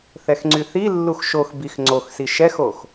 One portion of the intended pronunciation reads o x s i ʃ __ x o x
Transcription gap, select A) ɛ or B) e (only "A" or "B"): A